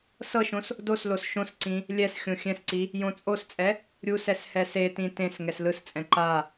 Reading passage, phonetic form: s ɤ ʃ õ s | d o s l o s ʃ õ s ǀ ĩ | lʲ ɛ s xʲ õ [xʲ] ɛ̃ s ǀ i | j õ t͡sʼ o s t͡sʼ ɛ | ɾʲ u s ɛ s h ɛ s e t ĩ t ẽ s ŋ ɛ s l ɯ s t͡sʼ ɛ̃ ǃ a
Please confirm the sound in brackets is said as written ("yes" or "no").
yes